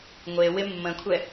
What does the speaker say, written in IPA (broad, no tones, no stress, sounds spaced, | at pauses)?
ŋʷ e w ɪ mː ə̃ kʷʰ ɛ